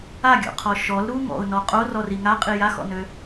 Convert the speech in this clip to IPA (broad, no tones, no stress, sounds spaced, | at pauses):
a ɡʲ ɔ̰ qʰ ɔ ʃ ɔ l ɾ u ŋ ɔ̰ ʊ̯ n ɔ qʼ o r ɔ r i ŋ a qʼ i j a x ɔ̰ n ø